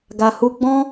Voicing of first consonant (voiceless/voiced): voiced